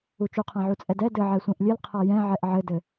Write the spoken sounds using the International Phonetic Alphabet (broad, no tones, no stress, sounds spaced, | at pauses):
u t͡ʃ u qʰ ã ʕ u t͡sʼ ɛ d ɛ d ɘ ʕ ɛ sʷ ɛ̃ ʔ lʲ ɘ l qʰ a j ɛ̃ ʕ ɛ ʔ ʕ ɘ d ɘ